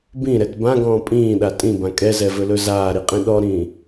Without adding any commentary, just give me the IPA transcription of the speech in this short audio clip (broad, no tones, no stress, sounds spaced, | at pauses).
b ĩ ɾ ɛ t b ã ɡ ɔ̃ː pʼ ĩː ɗ a tʼ ĩ b ã kʼ ɛ z ɛ v ɵ l ɵ z aː ɾ i qʼ ĩ ɗ ɔ ɾ ĩ